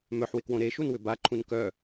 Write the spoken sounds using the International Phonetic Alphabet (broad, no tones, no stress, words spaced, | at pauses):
mœħwɪkwõ ɾeʃunwʏ baǃʰũn kœ